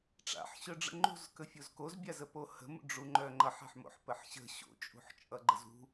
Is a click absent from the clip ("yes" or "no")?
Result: no